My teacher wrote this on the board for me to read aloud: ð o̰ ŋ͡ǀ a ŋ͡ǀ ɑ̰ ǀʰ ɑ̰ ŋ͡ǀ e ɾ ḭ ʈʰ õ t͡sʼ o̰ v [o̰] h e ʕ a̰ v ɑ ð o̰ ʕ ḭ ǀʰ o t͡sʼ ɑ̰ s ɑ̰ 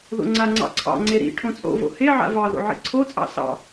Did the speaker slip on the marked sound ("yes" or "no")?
no